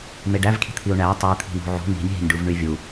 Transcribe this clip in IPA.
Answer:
m e ɖ æ v kʰ i̤ t̪ʰ i u̯ ɳ æ tˤ i t̪ʰ i̤ n ṳ ʕ ṳ n i̤ nʲ ɦ i̤ nʲ ɖ u v ɳ y vʲ u

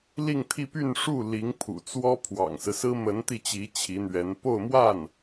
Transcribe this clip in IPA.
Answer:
l i˥˧ ŋ t̪ʰ i˥˧ p y˥˧ n ʂ u˥˩ l i˧˥ ŋ pʰ ṵ˨˩ t͡s w ɔ˥ pʰ w ɑ̰˨˩ ŋ s ɹ̩˦ s ɹ̩˥ m ə˧˥ n t̪ i˥˩ t͡ɕ i˧˥ t͡ɕʰ i˧˥ n̪ ɥ ɛ˧˥ n p o˥˧ ʊ̯ m w a˥˩ n

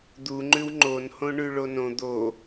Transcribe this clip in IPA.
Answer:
d̪ u ŋ͡ǃ ʉ w ŋ͡ǃ o n h õ ɳ ʉ ɭ o n õ d̪ o

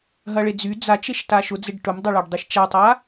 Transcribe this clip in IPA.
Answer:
ɦ ɐ ɭ e d͡z y d͡z a t͡ʃ e ʃ t a ʃ ʊ d͡z e ɖ ʈ ʊ m dˤ ɐ ɭ a ɖ dˤ e ʃ t͡ʃ a tˤ a

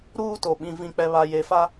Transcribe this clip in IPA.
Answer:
ɾ uː˦ t o˨ ɓ ĩ˨ v ĩ˨ k͡p ɛ˨ β a˨ j e˨ f a˦

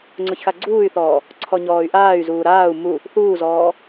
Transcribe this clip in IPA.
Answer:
ŋ͡ǀ ʊ ç x a ɡ͡ǀ uː y̯ θ ɔː | ǀʰ ɔ ɲ ɔː y̯ ʔ aː y̯ z uː ɾ aː u̯ m u | θ uː z ɔː

